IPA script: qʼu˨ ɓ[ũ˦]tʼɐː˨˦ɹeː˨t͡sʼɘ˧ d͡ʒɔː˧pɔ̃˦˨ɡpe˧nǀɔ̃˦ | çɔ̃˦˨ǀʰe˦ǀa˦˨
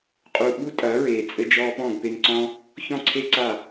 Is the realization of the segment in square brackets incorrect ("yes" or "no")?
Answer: yes